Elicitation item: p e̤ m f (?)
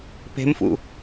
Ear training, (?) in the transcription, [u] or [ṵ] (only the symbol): ṵ